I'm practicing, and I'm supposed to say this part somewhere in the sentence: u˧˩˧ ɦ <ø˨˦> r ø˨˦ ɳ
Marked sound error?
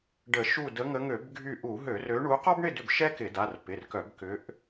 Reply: yes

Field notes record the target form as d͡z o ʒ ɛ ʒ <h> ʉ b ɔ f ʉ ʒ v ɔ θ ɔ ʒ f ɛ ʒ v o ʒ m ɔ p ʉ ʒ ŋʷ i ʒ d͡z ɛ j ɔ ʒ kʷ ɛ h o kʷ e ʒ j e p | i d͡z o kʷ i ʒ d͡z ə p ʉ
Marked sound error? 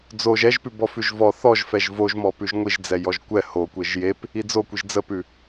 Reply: yes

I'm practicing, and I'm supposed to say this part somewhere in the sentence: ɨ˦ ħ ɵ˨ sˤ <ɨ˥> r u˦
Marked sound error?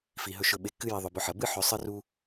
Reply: no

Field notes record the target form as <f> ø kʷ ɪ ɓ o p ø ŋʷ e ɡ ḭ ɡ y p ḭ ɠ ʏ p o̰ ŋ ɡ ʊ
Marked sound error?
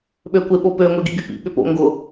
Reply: yes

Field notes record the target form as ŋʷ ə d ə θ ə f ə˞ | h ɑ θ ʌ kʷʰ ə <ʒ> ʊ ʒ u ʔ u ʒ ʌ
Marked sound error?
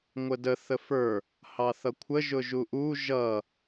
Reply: no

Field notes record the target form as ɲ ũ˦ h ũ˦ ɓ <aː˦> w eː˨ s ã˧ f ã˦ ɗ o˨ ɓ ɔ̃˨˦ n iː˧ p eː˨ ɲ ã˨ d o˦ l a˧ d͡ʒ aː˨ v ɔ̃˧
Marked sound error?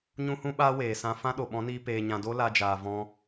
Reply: no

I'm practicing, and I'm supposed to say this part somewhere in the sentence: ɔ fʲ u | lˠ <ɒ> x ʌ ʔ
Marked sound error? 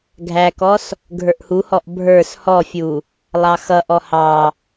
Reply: yes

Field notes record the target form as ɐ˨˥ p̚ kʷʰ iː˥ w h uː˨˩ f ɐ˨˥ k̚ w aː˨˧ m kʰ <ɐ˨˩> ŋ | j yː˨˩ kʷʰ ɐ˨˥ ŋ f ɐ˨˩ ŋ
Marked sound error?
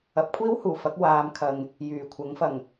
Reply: yes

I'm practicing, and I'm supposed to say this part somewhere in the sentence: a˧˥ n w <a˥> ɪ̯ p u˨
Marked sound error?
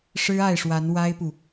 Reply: no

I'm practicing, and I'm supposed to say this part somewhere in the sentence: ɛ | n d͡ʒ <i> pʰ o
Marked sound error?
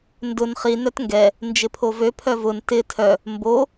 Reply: yes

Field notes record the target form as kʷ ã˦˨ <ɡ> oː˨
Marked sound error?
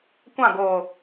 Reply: no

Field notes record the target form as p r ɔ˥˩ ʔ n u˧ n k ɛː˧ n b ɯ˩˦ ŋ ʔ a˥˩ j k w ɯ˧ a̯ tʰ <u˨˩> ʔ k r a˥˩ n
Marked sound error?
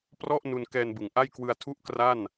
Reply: yes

